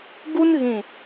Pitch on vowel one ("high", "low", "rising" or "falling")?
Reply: high